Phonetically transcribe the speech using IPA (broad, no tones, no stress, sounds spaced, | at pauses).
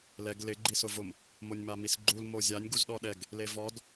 l ɛ ɡ l ɪ ɡ͡ǃ i s ʊ v ʊ m | m o nʲ m a m i s ɡ͡ǃ u l m o zʲ a nʲ ɡ u z ɗ ɔ ɗ ɛ ɡ | l e v ɔ d